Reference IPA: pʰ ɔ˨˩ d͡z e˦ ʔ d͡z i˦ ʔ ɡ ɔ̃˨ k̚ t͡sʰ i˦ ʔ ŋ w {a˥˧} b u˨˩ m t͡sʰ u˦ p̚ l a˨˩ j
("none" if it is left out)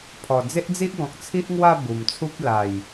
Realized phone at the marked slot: a˥˧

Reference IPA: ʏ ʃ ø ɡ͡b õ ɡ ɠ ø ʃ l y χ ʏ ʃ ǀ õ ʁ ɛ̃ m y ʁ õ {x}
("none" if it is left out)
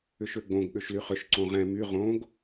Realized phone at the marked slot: ɡ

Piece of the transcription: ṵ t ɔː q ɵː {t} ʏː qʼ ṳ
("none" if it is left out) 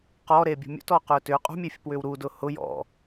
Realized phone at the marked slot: t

